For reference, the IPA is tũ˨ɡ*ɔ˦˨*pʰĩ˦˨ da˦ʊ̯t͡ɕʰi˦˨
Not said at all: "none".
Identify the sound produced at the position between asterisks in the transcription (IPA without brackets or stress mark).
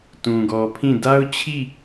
ɔ˨